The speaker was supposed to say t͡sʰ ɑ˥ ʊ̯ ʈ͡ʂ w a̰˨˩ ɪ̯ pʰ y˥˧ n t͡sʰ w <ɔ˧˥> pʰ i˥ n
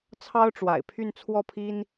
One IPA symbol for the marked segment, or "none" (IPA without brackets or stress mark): ɔ˥˩